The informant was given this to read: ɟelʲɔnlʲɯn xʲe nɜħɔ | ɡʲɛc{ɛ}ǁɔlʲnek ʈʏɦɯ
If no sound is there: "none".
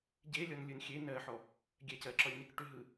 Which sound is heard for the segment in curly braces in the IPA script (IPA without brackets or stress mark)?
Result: ɜ